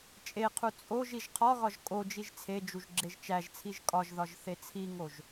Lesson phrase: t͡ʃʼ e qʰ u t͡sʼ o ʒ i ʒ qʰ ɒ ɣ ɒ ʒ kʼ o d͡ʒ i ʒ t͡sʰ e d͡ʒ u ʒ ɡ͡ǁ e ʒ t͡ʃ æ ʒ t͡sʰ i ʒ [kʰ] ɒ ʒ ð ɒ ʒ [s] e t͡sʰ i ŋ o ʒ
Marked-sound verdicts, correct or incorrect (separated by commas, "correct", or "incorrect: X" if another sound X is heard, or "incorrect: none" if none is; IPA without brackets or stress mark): incorrect: kʼ, incorrect: θ